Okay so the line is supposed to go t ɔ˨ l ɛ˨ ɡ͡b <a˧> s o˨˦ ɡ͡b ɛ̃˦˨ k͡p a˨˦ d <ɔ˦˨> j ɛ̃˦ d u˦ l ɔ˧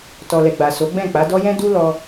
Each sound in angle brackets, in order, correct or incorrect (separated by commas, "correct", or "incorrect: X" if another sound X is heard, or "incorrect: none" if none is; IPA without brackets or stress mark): incorrect: a˨, incorrect: ɔ˦